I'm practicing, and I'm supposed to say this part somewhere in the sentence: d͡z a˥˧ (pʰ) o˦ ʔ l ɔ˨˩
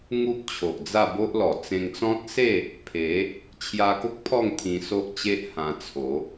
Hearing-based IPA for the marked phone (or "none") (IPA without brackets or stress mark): b